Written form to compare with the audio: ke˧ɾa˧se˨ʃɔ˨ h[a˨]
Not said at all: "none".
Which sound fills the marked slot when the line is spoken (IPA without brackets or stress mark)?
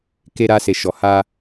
a˧